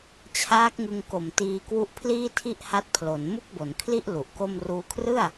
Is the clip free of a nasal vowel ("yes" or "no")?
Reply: yes